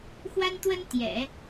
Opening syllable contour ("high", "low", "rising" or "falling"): high